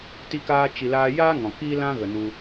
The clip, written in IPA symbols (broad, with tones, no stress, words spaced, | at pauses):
ti˧kaː˧ t͡ʃi˨laː˧ jaː˦ŋɔ̃˨ kiː˦lã˦ɣə˨ nu˧